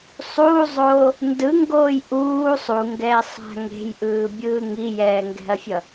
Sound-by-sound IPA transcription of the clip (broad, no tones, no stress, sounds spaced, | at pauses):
sˤ uː zˤ oː | n d ɯ ŋ ɡ oː j ʔ uː sˤ u ŋ ɡ ɛː sˤ a̤ ŋ e̤ j ʔ ɯː bʲ ɯː ŋ i j ɛː ŋ ɡ ɛ̤ ɐ̯ fʲ ʌ